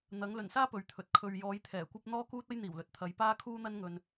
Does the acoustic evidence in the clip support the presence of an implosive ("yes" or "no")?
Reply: no